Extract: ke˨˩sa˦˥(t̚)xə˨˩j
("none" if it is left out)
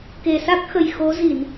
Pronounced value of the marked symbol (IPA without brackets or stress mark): k̚